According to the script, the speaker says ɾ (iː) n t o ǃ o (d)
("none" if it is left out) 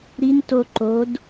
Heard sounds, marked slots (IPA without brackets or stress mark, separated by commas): i, d